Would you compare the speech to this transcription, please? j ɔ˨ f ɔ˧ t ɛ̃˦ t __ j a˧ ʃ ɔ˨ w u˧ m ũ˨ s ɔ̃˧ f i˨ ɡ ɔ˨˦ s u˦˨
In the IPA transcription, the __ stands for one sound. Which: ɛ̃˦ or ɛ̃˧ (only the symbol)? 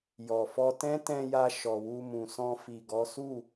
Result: ɛ̃˧